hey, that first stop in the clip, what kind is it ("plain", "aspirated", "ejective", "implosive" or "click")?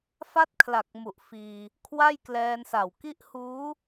plain